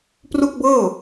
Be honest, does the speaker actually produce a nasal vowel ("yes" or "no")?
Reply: no